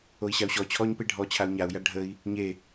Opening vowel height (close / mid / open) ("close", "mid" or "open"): mid